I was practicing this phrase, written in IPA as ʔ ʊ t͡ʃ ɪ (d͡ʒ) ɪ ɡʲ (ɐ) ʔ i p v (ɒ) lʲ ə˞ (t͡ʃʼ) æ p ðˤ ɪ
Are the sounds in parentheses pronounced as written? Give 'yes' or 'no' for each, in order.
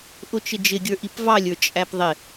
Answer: yes, no, no, yes

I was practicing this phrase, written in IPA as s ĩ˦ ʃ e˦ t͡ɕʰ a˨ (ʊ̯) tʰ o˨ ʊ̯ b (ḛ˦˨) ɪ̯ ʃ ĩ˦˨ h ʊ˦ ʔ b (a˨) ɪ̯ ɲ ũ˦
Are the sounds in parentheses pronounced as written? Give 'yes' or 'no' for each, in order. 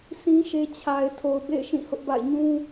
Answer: no, yes, no

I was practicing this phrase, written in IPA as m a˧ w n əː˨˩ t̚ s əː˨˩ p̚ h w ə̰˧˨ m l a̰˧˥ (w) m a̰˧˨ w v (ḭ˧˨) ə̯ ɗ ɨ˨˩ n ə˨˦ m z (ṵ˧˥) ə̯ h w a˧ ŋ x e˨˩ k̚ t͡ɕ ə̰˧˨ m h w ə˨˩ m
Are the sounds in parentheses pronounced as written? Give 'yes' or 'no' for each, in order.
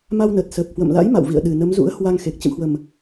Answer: no, yes, yes

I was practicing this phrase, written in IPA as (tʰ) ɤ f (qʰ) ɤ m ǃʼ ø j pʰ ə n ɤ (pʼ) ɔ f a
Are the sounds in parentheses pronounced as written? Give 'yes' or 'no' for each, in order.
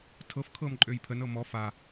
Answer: yes, no, no

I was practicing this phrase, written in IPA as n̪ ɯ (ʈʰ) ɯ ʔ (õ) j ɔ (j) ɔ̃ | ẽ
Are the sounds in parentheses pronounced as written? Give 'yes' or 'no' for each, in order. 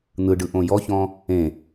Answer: no, yes, no

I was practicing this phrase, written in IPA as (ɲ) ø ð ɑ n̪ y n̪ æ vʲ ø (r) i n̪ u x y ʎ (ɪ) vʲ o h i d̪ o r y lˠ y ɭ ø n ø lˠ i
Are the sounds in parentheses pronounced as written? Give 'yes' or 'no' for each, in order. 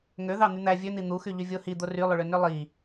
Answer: no, no, no

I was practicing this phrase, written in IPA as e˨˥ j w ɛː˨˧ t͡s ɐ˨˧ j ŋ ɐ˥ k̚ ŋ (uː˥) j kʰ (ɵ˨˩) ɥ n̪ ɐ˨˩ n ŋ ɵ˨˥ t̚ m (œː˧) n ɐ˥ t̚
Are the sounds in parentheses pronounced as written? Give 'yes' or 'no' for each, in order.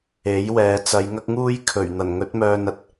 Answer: yes, yes, yes

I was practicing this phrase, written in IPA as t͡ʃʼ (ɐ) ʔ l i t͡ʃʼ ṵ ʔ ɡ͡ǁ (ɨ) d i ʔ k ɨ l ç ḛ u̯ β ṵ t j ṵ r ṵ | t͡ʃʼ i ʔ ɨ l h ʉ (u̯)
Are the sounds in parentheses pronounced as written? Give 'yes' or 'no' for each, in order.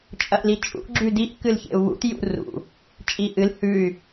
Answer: yes, no, no

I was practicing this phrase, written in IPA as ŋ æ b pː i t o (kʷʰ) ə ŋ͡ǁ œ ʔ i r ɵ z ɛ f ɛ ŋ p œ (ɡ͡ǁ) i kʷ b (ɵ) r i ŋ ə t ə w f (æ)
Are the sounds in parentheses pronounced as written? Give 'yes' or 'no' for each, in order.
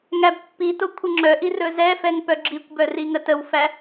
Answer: yes, yes, no, yes

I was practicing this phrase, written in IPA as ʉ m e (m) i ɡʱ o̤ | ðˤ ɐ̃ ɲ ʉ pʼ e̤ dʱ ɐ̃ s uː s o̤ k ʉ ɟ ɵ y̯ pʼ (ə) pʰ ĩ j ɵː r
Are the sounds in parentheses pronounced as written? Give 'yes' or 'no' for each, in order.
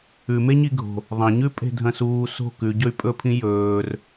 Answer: no, no

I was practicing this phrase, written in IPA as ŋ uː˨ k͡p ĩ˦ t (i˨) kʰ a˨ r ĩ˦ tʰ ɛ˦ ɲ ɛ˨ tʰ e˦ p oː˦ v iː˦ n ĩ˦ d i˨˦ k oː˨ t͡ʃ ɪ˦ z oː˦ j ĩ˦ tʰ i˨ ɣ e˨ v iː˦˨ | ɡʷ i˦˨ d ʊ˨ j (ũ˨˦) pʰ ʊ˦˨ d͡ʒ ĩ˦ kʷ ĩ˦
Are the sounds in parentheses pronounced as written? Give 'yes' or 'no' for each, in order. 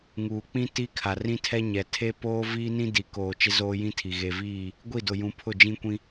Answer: no, yes

